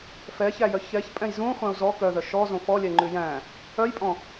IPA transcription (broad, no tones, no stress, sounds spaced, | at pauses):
f ɛ ç æ j œ ç ɛ ç pʼ ɛ̃ j z ũ χʷ ɛ̃ u̯ z ɔ k œ ð œ ʃ ɔ z õ f ɔ lʲ ɛ ŋ͡ǃ ʉ j æ̃ | œ j pʼ ɔ̃